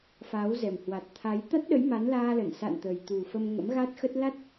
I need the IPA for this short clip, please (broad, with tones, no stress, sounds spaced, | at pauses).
f aː˨˦ w z ɛ˨˩ m h w a˨˩ t̚ t̪ʰ a˨˦ j t̪ a˦˥ t̚ ɗ ə˨˦ j m a˨˦ n l aː˧ l ə˧˩ n s a̰˧˨ n t̪ ə˨˩ j t̪ u˨˩ f ə˧ m ŋ ə̰˧˥ m ɣ a˦˥ t̚ x ə˦˥ t̚ l a˦˥ t̚